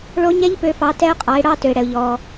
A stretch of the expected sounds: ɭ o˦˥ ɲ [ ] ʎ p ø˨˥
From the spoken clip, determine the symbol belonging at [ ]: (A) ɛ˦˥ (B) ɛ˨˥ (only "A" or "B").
A